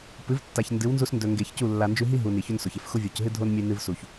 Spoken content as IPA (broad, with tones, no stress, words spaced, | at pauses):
pɨ˨˦vtːa˨ç ndɨ˨˦wnzu˧sndɵ˨ ŋɡe˧çcu˦˨ lːa˨nd͡ʒʉ˧ɦi˦ ɦu˨ ni˨ço˦nso˨ç e˧fxu˧vʲo˨cɦɨ˦ dʱo˦n mʲɨ˧ nɨ˧vsu˨ç